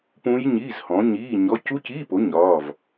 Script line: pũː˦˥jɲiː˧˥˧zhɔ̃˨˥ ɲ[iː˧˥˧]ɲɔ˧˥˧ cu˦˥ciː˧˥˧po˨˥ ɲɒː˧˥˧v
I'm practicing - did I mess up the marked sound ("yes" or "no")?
no